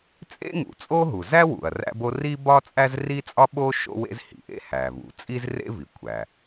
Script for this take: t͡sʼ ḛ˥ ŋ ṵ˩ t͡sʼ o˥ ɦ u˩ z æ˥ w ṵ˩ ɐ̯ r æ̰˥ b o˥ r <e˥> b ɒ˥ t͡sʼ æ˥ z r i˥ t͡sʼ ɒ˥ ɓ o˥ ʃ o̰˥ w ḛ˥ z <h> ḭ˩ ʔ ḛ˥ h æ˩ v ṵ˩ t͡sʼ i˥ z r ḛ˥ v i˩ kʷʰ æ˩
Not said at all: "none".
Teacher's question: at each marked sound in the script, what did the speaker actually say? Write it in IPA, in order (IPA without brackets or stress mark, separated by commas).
i˥, h